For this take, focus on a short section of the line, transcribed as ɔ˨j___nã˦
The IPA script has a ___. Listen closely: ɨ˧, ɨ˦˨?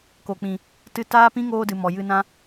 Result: ɨ˧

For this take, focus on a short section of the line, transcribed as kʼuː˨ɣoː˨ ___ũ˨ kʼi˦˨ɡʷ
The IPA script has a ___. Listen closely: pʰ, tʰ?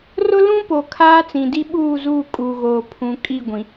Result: pʰ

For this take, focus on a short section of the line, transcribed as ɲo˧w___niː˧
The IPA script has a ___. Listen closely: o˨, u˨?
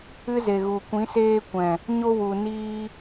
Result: u˨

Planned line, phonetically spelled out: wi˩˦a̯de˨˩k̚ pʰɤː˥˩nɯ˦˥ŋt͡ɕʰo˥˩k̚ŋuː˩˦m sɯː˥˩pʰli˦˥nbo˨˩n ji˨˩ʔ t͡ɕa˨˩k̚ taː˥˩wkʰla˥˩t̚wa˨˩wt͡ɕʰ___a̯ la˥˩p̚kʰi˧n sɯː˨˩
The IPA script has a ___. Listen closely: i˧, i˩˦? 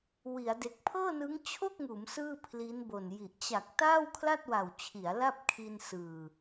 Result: i˩˦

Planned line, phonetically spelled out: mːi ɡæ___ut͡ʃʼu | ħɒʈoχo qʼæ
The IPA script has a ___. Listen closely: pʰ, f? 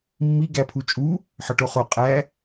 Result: pʰ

